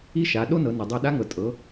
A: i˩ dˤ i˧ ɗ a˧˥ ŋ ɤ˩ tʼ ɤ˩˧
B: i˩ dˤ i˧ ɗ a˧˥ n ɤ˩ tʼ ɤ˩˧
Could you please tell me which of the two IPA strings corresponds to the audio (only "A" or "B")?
A